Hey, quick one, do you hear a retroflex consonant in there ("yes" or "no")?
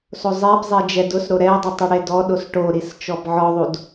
yes